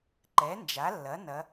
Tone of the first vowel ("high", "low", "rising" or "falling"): rising